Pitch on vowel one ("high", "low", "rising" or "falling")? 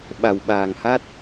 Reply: low